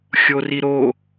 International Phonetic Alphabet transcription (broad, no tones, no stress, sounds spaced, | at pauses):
xʲ o r i ɾ o